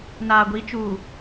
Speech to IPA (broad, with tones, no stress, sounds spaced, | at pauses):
n aː˨ ɡʷ i˨˦ t͡ʃ uː˨